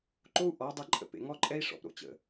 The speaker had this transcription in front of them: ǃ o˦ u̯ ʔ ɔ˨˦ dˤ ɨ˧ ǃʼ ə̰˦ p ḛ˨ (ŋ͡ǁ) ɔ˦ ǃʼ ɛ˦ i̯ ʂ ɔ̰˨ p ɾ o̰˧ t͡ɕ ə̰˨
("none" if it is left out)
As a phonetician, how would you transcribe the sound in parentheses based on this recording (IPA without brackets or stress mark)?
ŋ